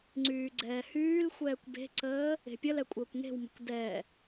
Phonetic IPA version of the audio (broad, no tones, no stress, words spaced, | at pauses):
ŋ͡ǀyːɡ͡ǀɛːhyːlxʷɛːkʷ be̤ǀəː | e̤pʲəlɛ kʷʼəːkʷŋe̤wmə̤kʷ dɛ